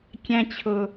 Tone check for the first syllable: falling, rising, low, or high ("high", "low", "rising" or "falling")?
high